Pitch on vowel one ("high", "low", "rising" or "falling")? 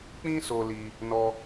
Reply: high